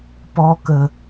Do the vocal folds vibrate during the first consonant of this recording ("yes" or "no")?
no